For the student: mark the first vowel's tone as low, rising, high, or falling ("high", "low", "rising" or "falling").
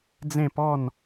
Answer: falling